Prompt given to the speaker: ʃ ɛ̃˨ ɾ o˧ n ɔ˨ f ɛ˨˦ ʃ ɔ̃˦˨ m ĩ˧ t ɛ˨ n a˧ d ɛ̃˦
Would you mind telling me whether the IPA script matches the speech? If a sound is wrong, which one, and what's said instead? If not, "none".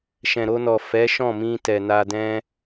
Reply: none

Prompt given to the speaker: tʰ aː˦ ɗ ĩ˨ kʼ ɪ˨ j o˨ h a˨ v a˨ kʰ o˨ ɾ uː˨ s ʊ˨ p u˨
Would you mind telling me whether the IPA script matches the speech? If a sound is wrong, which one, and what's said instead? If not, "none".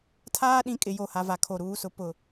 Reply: u˨ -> ʊ˨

